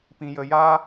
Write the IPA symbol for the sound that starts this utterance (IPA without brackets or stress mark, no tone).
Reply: p